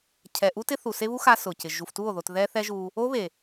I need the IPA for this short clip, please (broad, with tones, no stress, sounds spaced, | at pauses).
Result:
cʰ ɛ˨ ʔ u˦ t ɪ˦ θ u˨ s e˦ β u˦ x a˧ s ʊ˨ c ɪ˨ ʒ u˨ f t u˦˨ o̯ ð o˨ t ð ɛ˦ θ ɛ˦ ʒ u˧ | o˦ β e˨